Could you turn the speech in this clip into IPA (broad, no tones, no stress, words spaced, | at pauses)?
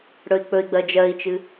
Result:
ɽɵi̯k͡pɵi̯ɡ͡bɜ d͡ʒɜi̯t͡ʃɨ